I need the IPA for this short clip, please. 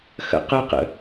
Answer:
x ə̰ q ə q ə̰

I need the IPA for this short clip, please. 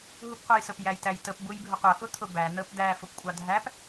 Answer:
ɦ u p qʷ ɑ j s ə p j æ j t æ j t ə p b u j bʱ ʊ qʷ ʌ x ʊ t̪ʰ ʊ b æ n̪ ə p d̪ æ f ʊ p kʷʼ ɑ dʱ æ p

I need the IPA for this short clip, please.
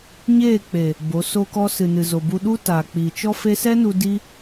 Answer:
ɲ eː˦˨ k͡p eː˨ | b o˨˦ s o˧ k ɔ˧ s ɨ˨ n ɨ˨ z o˨ b u˧ ɗ u˦ t aː˨ k͡p iː˨ t͡ʃ ɔ˦ f e˦ s ɛ˦ n u˧ d i˦

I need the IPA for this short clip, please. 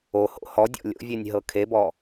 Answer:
o h o̰ h ɔ dʲ ɔ̰ lʲ o̰ vʲ e nʲ ɦ ɤ kʰ e b ɔ

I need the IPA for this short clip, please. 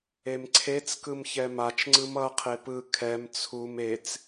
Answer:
e m ǀʰ e t͡s k ɯ m ç ɛ m a t͡ʃ ŋ͡ǀ ɯ m ʌ qʰ e p ɯ kʰ ɛ m t͡sʰ u m e t͡s

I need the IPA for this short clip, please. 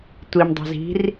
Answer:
tʷ i m dˤ ṳ z i̤ r

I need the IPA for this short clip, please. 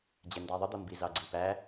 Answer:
d͡ʑ ɛ n d æ ðˤ ə d̪ ʌ m b i z ɑ ɡ͡ǀ i p æ

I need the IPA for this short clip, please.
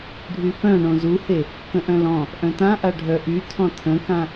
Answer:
ɖʱ y f œ̃ ɳ õ z u h e | k ə̃ ʔ œ̃ l ɔ̃ | ʔ œ̃ t ã ʔ a ɖʱ œ ʔ y tʰ ɔ̃ tʰ ə̃ k ã

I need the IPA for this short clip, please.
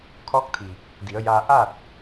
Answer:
kʰ ɔː˧˥ k̚ t̪ʰ i˩ | d i˩˧ ə̯ j aː˧ ʔ a˥˨ t̚

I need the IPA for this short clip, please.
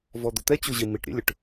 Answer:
v ɔ d̪ ʊ t̪ ɛ t͡ɕ u ʑ i m i ʈ ɾʲ ɛ̰ lʲ ʊ ʈ

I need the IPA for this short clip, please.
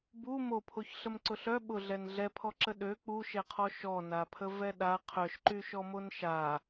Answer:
b u m o pʰ o ç ɬ ə m ǀ ʊ ɬ œ ɓ ʊ ɮ ɛ n ɮ ɛ pʰ ɔ ǁ ə ɗ ø k͡p u ʃ ɛ qʰ ɔ ʃ ɔ n a pʰ ə v ɛ ɗ a qʰ œ ʃ ǃ y ʃ ɔ m o n ʃ a

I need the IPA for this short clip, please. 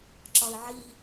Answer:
ǁ ɒ i̯ ʕ i

